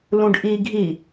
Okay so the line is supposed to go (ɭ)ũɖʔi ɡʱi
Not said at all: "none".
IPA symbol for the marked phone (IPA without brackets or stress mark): l